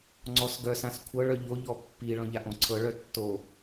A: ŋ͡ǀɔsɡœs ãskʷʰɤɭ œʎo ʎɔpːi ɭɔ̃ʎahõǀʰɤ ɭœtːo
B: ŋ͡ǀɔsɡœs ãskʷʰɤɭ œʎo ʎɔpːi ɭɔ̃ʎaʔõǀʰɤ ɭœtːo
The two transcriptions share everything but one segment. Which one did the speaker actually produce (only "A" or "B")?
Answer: B